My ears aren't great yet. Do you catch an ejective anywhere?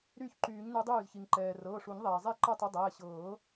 no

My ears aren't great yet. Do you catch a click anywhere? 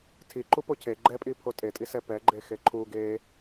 yes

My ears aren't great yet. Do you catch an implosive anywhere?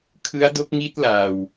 no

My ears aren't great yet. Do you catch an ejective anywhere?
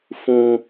no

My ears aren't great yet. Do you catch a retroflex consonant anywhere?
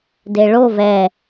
yes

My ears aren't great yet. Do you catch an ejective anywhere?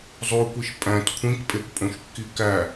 yes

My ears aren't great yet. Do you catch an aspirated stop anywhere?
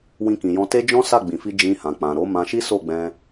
no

